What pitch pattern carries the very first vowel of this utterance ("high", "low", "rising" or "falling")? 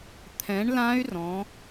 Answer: rising